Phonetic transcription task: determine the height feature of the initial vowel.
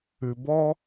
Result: high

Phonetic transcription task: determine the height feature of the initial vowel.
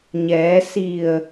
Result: mid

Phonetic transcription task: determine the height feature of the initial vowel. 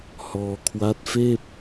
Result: mid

